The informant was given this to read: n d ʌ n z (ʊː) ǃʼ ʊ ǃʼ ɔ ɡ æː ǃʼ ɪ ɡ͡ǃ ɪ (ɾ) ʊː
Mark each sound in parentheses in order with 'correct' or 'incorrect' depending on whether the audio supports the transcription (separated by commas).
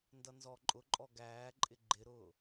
incorrect, correct